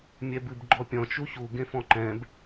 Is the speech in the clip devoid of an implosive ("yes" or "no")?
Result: yes